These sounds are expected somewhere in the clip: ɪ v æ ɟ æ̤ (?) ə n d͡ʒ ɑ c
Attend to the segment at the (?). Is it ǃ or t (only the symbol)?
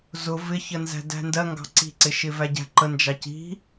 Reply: ǃ